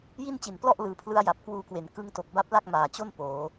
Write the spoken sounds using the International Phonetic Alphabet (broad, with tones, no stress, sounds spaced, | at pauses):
j i˥˩ n t͡ɕ i˨˩ n p l ɔ˥˩ ʔ l ɯː˩˦ pʰ l ɯ˦˥ a̯ j a˨˩ p̚ k w uː˧ k w e˩˦ n k ɯ˦˥ ŋ t o˨˩ k̚ b a˦˥ p̚ l a˥˩ k̚ m aː˨˩ t͡ɕ o˥˩ n p oː˩˦